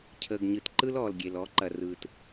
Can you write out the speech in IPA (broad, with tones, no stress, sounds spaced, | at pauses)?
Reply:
cʰ əː˨ ɡ ɲ ɯ˨ t ǃ ɯ˦ l ɔː˨ l ɡʲ e˨ l ɔ˨˦ ǃ ɐ˨ r ɯː˨ t